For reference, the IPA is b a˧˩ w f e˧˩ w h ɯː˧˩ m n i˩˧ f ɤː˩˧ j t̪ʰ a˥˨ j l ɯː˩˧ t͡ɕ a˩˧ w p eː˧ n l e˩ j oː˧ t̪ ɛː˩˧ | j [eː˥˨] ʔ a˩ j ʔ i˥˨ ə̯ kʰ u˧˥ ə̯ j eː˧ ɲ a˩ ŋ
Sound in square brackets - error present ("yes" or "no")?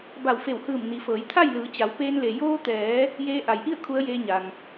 yes